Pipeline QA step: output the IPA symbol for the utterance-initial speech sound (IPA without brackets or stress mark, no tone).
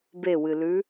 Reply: b